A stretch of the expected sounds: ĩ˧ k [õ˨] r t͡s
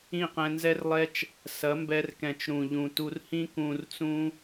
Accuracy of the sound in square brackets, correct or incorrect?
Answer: incorrect